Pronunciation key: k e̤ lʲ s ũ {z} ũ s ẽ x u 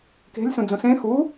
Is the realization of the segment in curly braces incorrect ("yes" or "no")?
yes